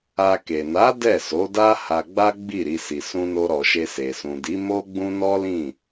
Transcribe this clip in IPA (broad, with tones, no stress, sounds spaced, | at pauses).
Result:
a˧ k e˨ n a˨˦ d ɛ˦˨ s o˨˦ d a˦ h a˧ ɡ͡b a˦ ɡ͡b i˦˨ ɾ i˧ s i˨ s ũ˧ n o˧ ɾ ɔ˨ ʃ e˧ s e˨ s ũ˨ d i˨˦ m o˦ ɡ͡b ũ˦ n ɔ˦ l ĩ˦˨